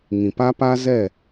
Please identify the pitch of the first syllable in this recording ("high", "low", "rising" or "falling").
low